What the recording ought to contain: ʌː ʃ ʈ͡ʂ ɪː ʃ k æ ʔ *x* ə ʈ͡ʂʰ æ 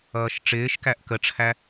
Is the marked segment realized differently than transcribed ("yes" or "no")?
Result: yes